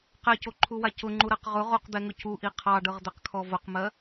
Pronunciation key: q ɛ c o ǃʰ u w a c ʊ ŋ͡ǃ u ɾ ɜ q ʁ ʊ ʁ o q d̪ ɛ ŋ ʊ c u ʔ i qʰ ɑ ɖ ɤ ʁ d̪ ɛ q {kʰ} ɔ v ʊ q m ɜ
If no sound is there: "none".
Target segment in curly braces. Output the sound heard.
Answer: kʰ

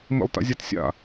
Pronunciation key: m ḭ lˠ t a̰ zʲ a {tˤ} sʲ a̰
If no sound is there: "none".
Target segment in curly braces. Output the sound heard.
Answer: t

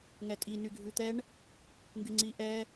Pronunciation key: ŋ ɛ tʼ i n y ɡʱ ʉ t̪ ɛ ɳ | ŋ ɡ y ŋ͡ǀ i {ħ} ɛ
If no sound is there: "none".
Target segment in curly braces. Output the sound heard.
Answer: ʔ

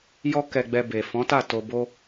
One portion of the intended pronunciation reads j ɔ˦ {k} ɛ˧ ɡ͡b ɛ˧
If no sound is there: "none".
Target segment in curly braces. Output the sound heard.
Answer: k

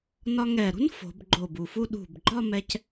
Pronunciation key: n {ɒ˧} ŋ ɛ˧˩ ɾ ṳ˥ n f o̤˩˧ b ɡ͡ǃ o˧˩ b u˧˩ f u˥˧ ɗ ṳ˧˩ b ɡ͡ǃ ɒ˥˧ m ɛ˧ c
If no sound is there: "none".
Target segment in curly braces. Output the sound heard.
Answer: ɒ˧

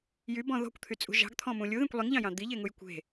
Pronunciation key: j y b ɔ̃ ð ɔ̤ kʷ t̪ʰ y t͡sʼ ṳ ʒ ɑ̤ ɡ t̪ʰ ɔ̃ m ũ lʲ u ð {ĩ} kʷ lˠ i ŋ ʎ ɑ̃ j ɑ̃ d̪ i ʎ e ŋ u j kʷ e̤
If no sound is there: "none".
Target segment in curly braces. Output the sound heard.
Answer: ẽ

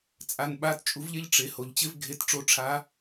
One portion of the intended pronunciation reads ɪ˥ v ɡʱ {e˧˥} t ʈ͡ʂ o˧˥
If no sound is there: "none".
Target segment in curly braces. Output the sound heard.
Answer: e˧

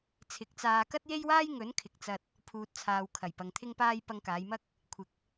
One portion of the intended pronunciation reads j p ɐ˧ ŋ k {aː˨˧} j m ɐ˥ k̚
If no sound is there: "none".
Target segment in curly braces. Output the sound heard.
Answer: aː˨˧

